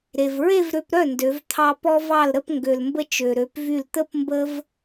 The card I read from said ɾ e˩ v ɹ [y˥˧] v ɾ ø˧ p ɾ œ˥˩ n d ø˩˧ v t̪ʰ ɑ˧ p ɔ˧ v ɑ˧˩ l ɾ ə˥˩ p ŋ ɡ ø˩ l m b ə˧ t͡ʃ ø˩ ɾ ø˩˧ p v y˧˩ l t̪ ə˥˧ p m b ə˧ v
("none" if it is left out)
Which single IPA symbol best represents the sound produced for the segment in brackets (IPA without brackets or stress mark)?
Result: e˥˧